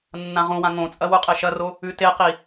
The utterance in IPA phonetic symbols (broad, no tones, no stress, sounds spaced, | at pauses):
nː ã ʁ ũ w ã ŋ õ t͡sʼ ɐ w u qʼ e ʃ ɐ r o | ʉ t e q i